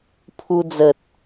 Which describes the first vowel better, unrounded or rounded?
rounded